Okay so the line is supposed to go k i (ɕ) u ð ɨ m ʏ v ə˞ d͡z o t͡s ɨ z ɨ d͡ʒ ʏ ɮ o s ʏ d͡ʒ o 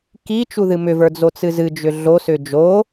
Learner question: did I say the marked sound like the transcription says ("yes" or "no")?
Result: no